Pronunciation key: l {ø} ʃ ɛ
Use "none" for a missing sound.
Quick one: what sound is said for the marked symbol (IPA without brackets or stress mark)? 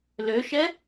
ø